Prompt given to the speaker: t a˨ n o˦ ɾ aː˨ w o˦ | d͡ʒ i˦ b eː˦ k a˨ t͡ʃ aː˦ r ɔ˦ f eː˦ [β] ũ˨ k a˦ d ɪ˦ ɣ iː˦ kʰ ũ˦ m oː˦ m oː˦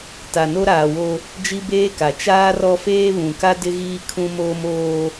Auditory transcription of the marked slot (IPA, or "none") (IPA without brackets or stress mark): β